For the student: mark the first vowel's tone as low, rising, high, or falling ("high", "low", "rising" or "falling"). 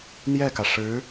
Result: falling